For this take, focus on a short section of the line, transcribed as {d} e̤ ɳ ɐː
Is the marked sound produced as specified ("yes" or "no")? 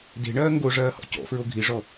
yes